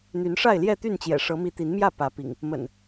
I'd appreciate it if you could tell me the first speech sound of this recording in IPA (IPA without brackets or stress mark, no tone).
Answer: n̪